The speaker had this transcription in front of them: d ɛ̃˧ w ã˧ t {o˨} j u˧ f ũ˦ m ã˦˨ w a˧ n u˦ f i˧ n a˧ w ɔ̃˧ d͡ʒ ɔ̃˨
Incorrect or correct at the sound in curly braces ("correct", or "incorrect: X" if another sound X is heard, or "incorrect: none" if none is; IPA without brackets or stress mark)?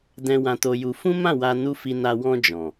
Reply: incorrect: o˧